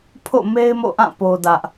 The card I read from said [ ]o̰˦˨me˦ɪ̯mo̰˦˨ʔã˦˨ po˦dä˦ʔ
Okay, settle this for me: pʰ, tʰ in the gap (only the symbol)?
pʰ